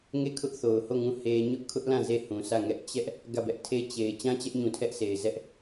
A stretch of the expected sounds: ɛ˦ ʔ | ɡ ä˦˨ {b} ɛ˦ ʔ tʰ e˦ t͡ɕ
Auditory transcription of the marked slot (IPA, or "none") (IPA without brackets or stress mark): b